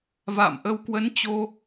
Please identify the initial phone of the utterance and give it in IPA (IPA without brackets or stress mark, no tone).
v